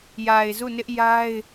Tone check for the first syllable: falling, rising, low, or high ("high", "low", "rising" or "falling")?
low